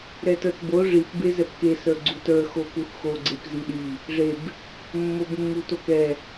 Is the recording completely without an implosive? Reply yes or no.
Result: no